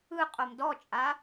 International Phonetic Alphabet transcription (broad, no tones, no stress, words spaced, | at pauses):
ɯ qʼomdɔt͡ʃʼa